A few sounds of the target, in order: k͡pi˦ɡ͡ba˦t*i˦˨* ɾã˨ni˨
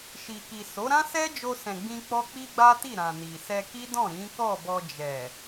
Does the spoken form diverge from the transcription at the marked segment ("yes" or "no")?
no